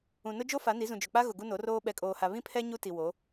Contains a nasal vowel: yes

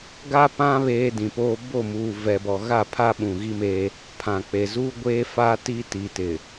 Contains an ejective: no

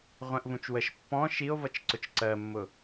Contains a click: yes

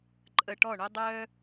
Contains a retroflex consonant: yes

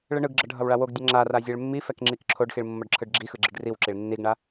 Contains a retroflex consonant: yes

